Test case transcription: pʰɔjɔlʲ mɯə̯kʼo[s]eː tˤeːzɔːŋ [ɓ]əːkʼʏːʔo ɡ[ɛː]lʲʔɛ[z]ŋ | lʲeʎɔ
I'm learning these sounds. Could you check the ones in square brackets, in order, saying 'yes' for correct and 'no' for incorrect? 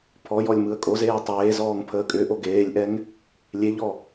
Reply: no, no, no, no

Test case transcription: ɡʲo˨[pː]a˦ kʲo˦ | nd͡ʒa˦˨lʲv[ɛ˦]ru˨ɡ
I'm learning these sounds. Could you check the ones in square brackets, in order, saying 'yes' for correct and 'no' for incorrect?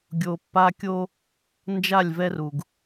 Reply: yes, yes

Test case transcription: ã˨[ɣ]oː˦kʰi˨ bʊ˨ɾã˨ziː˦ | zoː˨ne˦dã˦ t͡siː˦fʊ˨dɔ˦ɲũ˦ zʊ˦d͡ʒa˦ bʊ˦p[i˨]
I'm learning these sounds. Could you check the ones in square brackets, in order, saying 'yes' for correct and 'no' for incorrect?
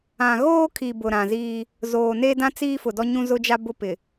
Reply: yes, no

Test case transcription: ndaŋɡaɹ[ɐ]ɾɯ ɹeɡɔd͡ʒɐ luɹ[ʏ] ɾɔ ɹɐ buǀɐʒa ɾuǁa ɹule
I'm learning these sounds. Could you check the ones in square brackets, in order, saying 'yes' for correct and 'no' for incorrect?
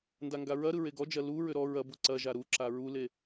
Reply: yes, yes

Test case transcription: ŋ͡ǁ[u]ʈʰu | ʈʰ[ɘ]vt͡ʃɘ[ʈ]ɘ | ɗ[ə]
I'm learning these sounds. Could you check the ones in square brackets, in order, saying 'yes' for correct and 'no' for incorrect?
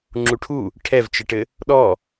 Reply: yes, no, yes, no

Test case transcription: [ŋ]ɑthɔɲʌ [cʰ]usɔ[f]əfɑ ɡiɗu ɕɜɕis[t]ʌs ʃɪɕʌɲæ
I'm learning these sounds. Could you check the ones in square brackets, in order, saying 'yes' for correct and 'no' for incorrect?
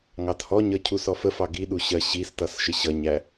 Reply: yes, yes, yes, yes

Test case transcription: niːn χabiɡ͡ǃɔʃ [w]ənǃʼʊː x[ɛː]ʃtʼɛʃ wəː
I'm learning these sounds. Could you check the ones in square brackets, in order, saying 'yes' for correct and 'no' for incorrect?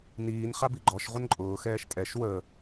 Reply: no, yes

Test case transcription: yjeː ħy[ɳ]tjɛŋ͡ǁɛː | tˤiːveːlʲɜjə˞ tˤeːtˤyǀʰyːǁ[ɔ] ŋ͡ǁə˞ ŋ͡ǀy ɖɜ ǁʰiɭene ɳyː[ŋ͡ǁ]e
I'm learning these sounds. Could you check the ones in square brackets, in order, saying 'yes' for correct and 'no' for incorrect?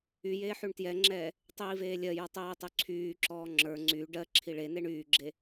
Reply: yes, no, no

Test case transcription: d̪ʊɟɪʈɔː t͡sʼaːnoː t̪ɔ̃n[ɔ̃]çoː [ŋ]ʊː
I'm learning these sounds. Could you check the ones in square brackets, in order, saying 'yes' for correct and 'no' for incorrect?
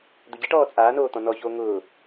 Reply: no, yes

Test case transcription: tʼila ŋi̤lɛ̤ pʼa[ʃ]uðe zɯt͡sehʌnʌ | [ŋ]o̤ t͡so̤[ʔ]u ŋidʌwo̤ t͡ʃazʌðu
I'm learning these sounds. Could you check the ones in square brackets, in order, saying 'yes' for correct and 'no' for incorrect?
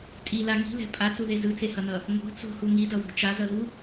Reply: no, yes, no

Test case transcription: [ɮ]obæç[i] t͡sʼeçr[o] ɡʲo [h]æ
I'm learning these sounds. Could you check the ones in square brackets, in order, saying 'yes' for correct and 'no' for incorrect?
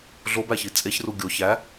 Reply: yes, yes, no, no

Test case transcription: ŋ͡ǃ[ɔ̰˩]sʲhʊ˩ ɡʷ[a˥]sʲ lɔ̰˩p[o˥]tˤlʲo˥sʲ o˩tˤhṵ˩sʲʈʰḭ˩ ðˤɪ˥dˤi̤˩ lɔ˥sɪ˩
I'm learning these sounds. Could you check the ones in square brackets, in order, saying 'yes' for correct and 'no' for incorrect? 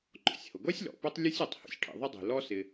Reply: yes, yes, yes

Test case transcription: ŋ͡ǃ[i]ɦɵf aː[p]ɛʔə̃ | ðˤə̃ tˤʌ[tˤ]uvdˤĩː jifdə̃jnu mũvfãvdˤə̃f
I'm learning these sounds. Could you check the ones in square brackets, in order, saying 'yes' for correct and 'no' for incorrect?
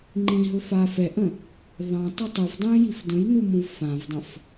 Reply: no, no, yes

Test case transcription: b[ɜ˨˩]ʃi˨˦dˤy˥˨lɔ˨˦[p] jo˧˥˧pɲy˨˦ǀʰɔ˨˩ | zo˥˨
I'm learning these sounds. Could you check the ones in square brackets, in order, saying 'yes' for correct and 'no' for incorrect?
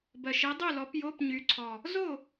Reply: yes, yes

